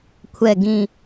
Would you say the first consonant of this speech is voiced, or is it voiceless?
voiceless